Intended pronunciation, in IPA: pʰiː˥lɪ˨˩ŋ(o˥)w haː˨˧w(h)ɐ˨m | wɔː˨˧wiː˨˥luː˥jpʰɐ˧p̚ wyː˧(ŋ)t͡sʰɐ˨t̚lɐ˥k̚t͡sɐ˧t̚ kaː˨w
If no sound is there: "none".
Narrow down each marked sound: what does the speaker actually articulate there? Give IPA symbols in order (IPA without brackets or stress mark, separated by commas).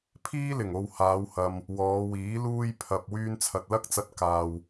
o˨, h, n